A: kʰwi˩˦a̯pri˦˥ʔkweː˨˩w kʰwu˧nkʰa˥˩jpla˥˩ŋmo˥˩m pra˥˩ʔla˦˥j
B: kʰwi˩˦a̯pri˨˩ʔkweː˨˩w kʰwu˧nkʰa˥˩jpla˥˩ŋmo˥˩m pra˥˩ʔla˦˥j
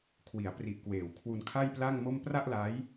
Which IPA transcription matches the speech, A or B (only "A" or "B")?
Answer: B